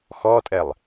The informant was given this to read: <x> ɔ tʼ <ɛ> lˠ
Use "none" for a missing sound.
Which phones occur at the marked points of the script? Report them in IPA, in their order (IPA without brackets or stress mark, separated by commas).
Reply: x, ɛ